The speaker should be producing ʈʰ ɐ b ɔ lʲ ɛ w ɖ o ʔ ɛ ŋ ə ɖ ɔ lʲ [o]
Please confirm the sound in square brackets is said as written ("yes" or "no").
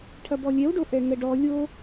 yes